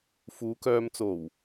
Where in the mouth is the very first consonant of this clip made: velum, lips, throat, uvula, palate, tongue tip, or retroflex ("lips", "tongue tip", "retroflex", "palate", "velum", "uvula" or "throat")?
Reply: lips